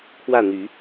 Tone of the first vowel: falling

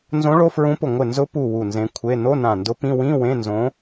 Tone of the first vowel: rising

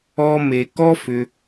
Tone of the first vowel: high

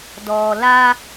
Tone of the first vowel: low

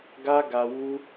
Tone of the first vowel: high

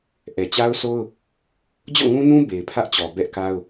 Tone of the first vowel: low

